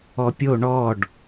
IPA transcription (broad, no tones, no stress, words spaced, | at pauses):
ɔpʲo ɳɔɖ